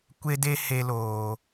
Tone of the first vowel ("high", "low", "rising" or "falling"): high